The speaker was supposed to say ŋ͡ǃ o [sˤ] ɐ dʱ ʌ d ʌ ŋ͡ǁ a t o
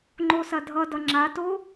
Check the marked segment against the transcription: incorrect: s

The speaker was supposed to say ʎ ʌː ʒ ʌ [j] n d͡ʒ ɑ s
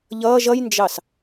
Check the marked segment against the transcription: correct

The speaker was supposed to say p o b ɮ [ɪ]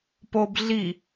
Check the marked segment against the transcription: incorrect: i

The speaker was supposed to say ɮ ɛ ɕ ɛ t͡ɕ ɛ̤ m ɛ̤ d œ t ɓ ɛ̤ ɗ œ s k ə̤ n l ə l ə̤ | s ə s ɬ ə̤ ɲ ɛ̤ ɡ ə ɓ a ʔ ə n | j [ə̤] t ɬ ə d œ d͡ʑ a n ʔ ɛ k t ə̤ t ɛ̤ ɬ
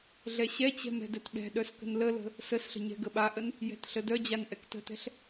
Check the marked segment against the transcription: incorrect: ɛ̤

